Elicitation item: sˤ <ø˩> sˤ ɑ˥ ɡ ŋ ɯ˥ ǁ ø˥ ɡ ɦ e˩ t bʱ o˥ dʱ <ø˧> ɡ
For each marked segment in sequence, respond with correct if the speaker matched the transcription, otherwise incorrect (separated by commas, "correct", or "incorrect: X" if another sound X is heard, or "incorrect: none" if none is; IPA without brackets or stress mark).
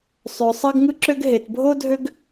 correct, incorrect: ø˥